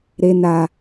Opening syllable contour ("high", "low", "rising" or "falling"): high